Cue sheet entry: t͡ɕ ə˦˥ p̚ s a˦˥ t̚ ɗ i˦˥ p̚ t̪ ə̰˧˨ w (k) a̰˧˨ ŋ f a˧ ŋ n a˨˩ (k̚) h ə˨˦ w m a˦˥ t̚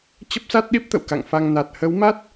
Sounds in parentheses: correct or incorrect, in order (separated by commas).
correct, incorrect